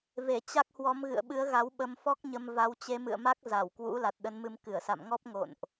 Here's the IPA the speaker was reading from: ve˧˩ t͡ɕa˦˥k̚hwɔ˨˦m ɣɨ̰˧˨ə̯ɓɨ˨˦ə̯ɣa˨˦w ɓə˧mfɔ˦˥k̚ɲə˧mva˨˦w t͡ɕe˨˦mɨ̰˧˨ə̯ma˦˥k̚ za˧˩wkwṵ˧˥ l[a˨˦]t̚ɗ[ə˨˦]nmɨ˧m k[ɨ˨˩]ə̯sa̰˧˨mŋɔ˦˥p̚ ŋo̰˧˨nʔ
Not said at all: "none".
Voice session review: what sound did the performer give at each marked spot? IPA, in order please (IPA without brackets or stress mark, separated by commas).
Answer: a˨˩, ə˨˦, ɨ˧˩